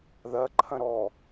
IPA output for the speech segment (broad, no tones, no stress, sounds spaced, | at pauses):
ð ɐ ǃʰ ɐ̃ ɾ ɔ